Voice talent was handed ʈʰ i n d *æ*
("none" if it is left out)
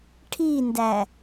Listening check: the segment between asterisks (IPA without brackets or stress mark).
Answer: æ